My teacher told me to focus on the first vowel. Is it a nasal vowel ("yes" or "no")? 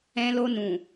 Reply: yes